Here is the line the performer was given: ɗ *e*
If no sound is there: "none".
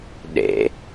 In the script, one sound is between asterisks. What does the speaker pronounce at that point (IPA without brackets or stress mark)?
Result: ḛ